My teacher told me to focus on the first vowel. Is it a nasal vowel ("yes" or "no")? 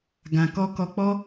yes